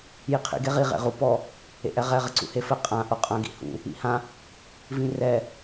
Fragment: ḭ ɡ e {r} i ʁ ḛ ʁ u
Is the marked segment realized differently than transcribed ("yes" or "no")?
yes